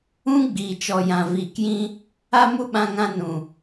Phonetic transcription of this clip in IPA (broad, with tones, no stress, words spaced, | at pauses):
ũ˦ɡ͡biː˨t͡ʃɔ˨jã˨ viː˨kjĩ˧ | a˦mu˦ɓã˧ŋã˧ nũ˨